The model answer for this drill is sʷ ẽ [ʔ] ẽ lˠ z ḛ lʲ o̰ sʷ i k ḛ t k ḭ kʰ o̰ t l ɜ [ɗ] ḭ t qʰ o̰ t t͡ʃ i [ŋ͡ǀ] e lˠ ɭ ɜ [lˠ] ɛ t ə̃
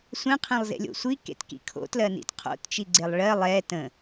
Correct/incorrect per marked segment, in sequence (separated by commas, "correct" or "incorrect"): incorrect, incorrect, incorrect, correct